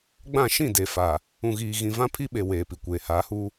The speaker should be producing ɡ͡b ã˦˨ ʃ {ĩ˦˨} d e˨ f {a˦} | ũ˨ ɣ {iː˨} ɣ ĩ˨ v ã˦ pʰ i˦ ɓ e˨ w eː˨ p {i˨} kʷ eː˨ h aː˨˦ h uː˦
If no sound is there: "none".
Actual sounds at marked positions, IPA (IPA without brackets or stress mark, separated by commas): ĩ˦˨, a˨, iː˨, i˨